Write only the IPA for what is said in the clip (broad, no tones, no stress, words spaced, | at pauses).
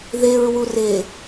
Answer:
ðeɹwu re